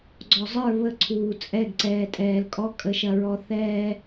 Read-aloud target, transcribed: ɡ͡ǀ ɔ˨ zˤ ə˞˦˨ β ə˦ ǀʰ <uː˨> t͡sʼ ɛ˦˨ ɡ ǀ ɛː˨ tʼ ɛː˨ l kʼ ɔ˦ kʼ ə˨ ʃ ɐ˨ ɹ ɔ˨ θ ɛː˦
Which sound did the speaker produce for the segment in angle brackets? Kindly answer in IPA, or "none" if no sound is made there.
uː˨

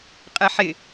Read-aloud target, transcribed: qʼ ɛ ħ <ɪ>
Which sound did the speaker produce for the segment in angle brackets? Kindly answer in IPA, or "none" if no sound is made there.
ɪ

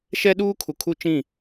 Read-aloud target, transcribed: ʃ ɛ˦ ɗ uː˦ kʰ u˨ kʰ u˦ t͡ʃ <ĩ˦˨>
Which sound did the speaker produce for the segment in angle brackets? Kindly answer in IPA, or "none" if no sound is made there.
ĩ˦˨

